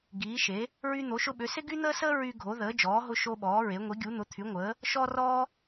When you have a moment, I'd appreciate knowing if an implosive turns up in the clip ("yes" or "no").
yes